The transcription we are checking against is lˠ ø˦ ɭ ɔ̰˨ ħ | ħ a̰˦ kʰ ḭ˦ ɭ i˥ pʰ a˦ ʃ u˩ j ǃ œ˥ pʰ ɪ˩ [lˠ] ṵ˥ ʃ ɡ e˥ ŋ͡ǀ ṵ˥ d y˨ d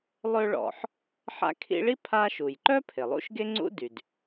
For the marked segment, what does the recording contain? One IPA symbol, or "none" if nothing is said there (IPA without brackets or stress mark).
lˠ